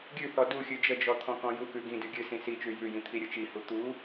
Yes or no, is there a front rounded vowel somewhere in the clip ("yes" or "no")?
no